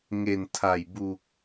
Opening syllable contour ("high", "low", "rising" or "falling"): low